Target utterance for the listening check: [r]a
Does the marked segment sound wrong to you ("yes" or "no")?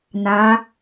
yes